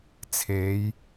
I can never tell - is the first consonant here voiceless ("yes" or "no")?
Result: yes